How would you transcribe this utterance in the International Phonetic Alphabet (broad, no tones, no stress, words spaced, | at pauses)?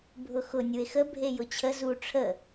bʱʊxʊ nʲue̯xə bʱejʊt͡ɕʰə zu ʈ͡ʂʰə